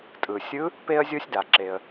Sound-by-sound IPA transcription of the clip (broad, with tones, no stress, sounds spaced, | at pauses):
tʼ ɯ˩ sʲ ɯ˧˥ | p e˥ ə̯ zʲ o˥ sʲ d a˩ ǁ e˩ ə̯